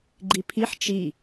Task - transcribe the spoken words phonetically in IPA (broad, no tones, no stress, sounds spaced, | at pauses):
ɡ͡ǃ i pʰ i ħ t͡ʃ i